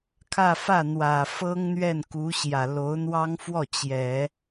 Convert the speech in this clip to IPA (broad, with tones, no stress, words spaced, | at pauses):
kʰä˥˧ fä˥˩n̪wä˨˩ fɤ˥ŋn̪ɥɛ˥˩nku˧˥ ɕjä˨˩lo˧˥ʊ̯n̪wɑ˥ŋfwɔ˥˩ t͡ɕjɛ˨˩˦